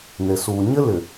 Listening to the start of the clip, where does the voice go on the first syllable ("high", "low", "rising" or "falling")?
low